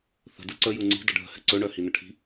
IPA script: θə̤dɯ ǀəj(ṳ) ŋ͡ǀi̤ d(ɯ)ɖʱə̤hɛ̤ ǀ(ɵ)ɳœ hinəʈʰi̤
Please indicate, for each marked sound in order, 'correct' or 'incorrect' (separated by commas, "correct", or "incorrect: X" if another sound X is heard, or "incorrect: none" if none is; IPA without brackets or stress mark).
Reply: incorrect: u, incorrect: ə, correct